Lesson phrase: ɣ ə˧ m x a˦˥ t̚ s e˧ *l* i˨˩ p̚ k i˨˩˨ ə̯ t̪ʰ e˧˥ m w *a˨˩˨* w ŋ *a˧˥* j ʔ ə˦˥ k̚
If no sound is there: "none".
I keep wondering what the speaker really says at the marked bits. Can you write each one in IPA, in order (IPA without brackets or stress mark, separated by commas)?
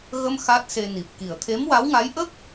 n, a˧˥, a˧˥